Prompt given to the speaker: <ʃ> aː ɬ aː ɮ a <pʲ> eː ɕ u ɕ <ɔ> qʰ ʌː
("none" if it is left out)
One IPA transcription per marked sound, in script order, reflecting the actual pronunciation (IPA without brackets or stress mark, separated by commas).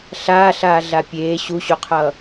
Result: ɬ, pʲ, o